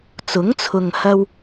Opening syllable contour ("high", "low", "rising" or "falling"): rising